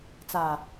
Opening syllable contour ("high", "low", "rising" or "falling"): low